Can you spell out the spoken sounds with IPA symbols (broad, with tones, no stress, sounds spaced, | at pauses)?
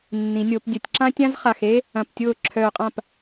nː ĩ˩˧ nʲ o˧˩˧ p dʲ ɐ˧˩˧ tʲ ǁ ã˥ tʲ ã˥ z χ a˧˩ x e˥ | ɐ̃˧˩ p tʲ ʊː˥˩ ǁʰ œː˧˩ qʼ ã˥˩ p